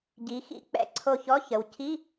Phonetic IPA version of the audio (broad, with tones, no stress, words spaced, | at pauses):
ɟi˩˧ xḭ˧˥k͡pɛ̰˧˩ ǀʰo˧˩çɔ˧˥˧ çə˩˧w cʰi˧˥˧